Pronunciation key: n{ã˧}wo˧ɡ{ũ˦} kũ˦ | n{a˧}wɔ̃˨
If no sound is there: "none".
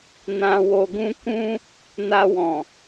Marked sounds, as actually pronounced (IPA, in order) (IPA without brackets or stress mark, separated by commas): ã˧, ũ˦, a˧